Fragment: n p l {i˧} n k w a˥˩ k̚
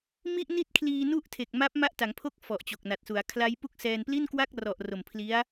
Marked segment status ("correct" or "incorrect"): incorrect